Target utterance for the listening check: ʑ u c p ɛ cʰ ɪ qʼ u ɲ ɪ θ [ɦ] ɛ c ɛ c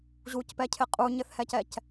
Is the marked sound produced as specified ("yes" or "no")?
no